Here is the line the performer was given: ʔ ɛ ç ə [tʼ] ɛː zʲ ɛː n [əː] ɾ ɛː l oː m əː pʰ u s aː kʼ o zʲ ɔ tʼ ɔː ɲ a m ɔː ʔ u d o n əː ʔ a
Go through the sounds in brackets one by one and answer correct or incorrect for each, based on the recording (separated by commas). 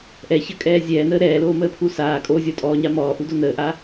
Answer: incorrect, correct